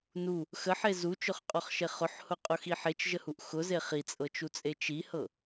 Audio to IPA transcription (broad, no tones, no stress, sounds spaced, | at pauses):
n u | x ə ħ e z u t͡ʃ ʊ χ qʼ ɔ χ ʃ e χ ʊ ħ h ʊ qʼ ʊ x i ħ e t͡ʃ ʒ ə h u ʔ x ʊ z e χ i t͡sʼ ɤ t͡ʃ u t͡sʼ e t͡ʃ i h ɤ